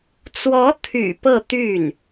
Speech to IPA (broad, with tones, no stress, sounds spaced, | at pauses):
t͡s w ɔ˧˥ t̪ʰ y̰˨˩ p ɤ˥˧ t̪ y˥˩ n